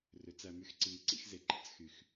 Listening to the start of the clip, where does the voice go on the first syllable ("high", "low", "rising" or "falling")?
rising